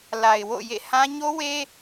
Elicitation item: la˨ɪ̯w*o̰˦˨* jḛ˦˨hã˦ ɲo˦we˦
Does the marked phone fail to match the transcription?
no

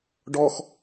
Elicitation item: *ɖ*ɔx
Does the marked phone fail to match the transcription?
no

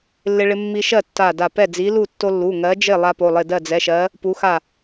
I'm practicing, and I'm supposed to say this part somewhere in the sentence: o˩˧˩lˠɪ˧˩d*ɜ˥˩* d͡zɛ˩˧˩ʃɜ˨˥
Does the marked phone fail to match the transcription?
no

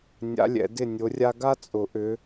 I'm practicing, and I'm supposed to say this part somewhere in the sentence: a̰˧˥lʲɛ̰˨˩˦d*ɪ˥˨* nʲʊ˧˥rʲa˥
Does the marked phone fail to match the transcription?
no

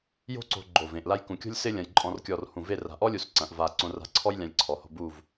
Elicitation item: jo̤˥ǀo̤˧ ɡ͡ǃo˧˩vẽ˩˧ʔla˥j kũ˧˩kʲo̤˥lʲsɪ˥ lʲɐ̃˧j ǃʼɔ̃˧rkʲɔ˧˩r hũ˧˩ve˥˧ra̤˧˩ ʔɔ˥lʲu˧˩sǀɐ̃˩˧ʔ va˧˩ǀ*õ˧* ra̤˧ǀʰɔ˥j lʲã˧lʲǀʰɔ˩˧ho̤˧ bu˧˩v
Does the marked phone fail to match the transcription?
no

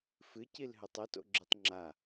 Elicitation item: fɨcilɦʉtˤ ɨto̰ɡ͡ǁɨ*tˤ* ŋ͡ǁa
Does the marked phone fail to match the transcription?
no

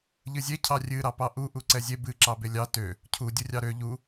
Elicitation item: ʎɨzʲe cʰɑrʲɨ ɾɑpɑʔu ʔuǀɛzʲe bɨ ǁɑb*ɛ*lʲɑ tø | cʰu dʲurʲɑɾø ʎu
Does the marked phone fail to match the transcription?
yes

